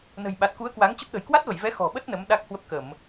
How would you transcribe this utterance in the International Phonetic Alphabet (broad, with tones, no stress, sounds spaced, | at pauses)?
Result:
n ə̤˨˩ j ɓ a˨˩ t̚ k u˨˦ ə̯ k w a˨˦ ŋ t͡ɕ ə˦˥ p̚ ɗ ə̤˨˩ j k w a˦˥ t̚ v ə˧˩ j v ɛ˨˦ x ɔ̤˨˩ ɓ ə˦˥ t̚ n ə˨˦ m ɗ a˦˥ k̚ h w ə˦˥ p̚ k ə˧˩˨ m